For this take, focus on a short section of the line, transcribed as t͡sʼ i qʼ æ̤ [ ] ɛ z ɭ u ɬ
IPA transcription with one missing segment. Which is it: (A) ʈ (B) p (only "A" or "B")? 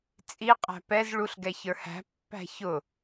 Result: B